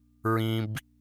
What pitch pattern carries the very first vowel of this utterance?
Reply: low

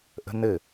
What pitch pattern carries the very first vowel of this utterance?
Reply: high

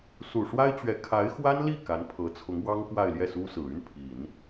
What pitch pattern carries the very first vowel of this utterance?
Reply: low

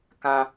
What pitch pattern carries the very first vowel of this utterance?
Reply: high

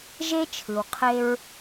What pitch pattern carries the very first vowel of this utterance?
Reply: high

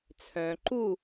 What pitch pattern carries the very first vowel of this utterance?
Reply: low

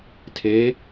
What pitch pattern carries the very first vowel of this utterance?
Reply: rising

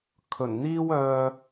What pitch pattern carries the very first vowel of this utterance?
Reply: low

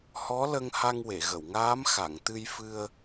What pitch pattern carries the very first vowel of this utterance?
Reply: rising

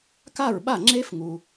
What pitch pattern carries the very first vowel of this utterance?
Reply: falling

